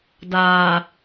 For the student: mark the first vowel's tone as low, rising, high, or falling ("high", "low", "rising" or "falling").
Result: low